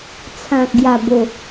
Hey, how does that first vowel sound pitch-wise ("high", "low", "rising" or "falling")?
low